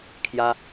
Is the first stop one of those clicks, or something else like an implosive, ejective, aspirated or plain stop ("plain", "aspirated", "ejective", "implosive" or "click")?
aspirated